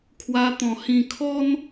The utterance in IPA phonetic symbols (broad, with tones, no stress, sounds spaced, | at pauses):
kʰ w a˧ t̪ ɔ̃˨˩ h ĩ˨˩ kʰ ɔ˦ n